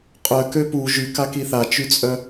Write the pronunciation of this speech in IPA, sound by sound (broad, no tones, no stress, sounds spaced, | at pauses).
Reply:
qʼ œ k ø p u ʒ y k a k i θ a t͡ʃ y t͡sʼ œ